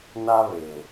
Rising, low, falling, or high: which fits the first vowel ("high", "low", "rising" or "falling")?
high